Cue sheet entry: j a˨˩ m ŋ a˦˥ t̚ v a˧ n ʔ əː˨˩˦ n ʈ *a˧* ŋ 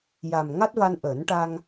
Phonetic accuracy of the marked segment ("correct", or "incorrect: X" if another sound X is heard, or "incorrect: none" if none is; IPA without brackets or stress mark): correct